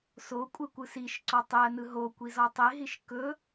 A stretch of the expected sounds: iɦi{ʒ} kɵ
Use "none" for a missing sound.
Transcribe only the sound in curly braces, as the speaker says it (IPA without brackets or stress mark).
ʃ